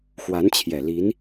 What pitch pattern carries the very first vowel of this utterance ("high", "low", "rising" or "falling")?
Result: rising